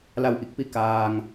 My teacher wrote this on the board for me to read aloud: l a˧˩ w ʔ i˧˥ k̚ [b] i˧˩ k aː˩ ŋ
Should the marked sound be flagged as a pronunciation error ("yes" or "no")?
yes